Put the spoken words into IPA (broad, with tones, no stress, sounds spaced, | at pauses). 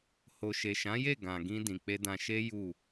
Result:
h o˨ ʃ e˨ ʃ ã˨˦ j e˦˨ ɡ ã˨ ɡ ĩ˧ d ĩ˨ k͡p e˧ d ã˧ ʃ e˦ j u˦˨